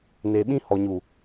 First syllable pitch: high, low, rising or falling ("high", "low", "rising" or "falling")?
low